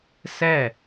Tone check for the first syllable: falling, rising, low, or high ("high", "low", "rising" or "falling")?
falling